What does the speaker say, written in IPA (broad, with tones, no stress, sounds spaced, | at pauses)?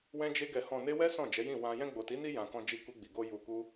w ɛ̃˧ d͡ʒ e˧ ɡ ɛ˨ h ɔ̃˨ n e˧ w ɛ˦ s ɔ̃˦˨ d͡ʒ ɛ˨˦ j ĩ˦˨ w ã˧ j ɛ̃˧ ɡ͡b o˨ t i˨˦ n i˧ j ã˨ k ɔ̃˧ d͡ʒ i˧ k u˧ ɡ͡b i˨ ɡ o˧ j u˨ k u˧